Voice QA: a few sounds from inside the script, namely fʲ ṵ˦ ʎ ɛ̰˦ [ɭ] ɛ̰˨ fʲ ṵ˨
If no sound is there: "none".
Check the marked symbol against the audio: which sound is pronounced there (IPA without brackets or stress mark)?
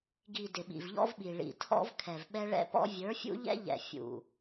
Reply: ʎ